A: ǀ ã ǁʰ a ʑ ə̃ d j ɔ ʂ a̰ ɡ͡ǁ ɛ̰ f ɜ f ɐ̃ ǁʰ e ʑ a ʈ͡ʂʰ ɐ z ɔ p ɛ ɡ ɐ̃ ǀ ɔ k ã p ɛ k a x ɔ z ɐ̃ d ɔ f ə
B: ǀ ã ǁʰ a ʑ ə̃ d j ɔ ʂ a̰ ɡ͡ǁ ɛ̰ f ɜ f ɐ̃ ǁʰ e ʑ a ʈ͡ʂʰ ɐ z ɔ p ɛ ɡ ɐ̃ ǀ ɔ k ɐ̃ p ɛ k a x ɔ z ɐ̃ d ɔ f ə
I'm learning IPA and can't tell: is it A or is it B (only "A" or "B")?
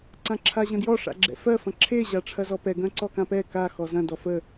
A